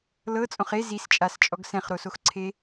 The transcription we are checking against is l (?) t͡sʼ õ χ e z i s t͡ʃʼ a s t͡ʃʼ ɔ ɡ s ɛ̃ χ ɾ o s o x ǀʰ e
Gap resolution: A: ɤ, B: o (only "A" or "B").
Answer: A